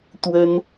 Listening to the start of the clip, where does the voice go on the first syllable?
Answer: high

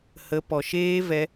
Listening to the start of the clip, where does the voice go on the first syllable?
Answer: rising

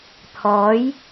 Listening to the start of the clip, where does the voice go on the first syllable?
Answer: rising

